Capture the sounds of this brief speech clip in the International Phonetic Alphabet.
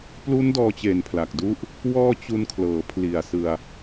p l u˦˥ n d ɔː˧ t͡ɕ e˨˩ n pʰ l a˨˩ k̚ d u˥˩ ʔ | w ɔː˧ t͡ɕ u˧ n kʰ l ɤː˩˦ pʰ l i˨˩ a̯ s ɯ˧ a̯

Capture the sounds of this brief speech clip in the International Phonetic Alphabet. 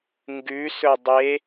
ŋ ɡ ʉ s ɵ dˤ e

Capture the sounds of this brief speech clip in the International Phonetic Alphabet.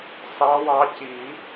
s ɑ˨˦ w ɑ˨˦ c i˨˩˦

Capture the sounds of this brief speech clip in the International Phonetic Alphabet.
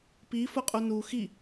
p i f ʊ qʼ u n u x i

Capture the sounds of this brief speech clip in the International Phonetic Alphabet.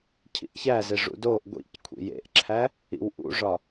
cʰ ḭ ʔ ç æ z e ʐ ṵ d o ʔ ɡʷ ḭ c kʷʰ ḭ j ḛ ʔ ǁʰ æ | ḭ w ʔ ṵ ʐ ɒ

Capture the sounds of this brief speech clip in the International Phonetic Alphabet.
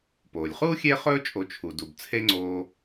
p oː˩ lʲ χ uː˥ xʲ e˦ χ ɵː˦ t͡ʃʼ o˨ t͡ʃʰ u˩ d u˩ b t͡sʰ e˦ ŋ͡ǀ oː˨

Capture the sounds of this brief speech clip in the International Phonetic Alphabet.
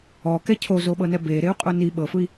ɔ k ɛ cʰ o z o ɓ ɤ n ɛ b e ɾ e u̯ qʼ o n i ɓ ɤ f ɯ i̯

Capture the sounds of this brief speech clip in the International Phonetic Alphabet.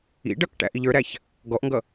ḭ ɖ ʌ k ʈ æ̰ ʔ i ʎ ə˞ ɾ æ ç | ɡ ɔ ʔ ŋ ɡ ʌ

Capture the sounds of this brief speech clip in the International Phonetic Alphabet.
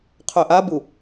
qʰ œ ʔ a b u

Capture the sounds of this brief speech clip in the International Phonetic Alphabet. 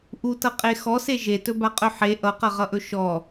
ʔ u t ʌ qʼ e x ɔ s e ʒ e t ɵ b a qʼ ɵ ħ e ʔ ʌ q ʌ ʁ ʌ ʔ ɵ ʃ ɔ

